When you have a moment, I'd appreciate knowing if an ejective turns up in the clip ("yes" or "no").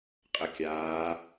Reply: yes